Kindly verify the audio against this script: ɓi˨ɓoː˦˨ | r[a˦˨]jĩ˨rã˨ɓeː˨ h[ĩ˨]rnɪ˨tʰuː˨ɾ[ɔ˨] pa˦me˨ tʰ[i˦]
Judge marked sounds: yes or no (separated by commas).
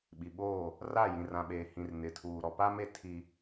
yes, yes, yes, yes